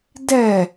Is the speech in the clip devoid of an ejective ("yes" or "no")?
yes